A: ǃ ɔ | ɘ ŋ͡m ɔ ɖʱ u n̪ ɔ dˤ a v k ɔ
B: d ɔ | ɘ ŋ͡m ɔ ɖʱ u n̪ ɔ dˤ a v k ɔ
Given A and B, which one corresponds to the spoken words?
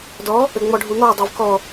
B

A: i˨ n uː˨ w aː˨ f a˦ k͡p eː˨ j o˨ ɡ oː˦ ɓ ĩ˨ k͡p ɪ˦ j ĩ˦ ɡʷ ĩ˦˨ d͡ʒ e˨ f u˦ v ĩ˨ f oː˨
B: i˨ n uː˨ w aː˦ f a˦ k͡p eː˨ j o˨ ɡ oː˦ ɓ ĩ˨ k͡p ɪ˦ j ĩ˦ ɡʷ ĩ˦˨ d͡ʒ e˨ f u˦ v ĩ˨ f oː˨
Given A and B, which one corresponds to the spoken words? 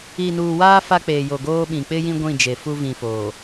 B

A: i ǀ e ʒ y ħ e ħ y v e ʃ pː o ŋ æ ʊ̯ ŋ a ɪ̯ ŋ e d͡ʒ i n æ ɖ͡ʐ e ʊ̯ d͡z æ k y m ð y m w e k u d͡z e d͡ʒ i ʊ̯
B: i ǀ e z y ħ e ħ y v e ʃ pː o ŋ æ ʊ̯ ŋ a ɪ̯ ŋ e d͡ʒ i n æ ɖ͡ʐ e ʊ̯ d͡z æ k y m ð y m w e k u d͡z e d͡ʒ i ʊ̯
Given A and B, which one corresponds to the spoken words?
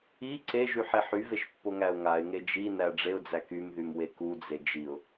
A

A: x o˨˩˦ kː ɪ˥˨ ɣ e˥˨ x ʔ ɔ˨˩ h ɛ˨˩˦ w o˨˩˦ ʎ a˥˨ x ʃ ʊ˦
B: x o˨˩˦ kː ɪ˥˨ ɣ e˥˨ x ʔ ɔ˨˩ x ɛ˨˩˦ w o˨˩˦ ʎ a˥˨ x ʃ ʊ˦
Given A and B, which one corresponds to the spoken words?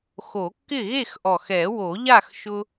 B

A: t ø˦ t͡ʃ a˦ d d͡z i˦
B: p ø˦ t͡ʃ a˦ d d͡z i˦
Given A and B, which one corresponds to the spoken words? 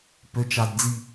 B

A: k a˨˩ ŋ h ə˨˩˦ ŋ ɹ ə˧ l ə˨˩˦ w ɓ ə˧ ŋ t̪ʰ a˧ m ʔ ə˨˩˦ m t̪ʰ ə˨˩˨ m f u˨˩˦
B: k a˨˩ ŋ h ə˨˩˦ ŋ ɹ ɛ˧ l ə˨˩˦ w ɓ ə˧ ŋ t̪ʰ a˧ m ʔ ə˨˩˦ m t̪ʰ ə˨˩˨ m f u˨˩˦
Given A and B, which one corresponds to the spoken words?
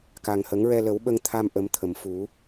B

